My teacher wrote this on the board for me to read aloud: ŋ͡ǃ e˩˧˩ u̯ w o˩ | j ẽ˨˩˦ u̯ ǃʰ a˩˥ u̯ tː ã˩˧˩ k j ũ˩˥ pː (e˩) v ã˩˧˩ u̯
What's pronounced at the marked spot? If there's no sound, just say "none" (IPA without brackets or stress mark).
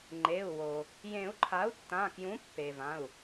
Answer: e˩